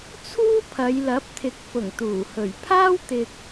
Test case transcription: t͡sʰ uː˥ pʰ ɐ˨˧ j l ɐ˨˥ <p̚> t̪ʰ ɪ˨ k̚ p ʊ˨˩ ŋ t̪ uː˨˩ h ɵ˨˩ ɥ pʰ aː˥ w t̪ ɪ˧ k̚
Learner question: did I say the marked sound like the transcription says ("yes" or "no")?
yes